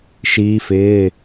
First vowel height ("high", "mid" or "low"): high